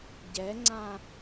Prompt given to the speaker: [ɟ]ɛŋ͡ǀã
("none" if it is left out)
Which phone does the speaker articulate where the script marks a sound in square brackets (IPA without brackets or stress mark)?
ɟ